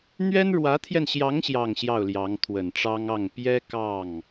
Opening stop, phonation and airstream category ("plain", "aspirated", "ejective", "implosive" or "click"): aspirated